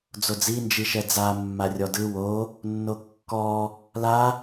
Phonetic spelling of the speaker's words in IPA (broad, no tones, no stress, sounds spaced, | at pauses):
d͡z o d͡z i n d͡ʒ i ʃ ɛ d͡z a mː a rʲ ɔ d ɯ w o | nː o kː ɔ | l a